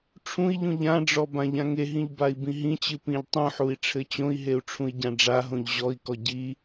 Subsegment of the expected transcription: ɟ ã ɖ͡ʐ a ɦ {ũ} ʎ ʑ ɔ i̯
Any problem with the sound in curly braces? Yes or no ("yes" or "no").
yes